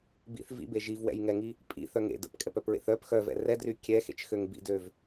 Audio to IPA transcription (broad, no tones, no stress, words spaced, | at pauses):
bḭθ vḭbe ʒivwɛ̰jŋɛŋi | pʼḭθœŋḛ də̰pkʼɛpœpɹḛθ œp xœvɛ̰ rɛdry kʲɛxḛt͡ʃxøŋ bḭdøv